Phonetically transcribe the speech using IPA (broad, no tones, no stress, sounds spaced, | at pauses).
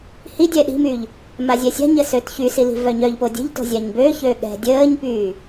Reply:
h i dʲ ɛ ɗ i̤ m yː ʎ | m a zʲ ɛ sʲ a̤ ɲ ə s ø t ç y s i l i̤ v œ ɲ œ ʎ p o dʲ ə̤ ʎ t o̤ zʲ a ɲ b ø ç ø ɠ ɛ̤ dʲ əː ɲ p yː